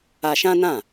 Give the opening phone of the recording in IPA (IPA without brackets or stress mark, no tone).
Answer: a